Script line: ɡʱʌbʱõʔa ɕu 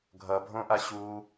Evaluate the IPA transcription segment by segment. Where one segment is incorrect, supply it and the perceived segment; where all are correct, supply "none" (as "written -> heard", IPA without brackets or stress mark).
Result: none